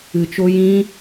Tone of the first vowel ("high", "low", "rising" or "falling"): low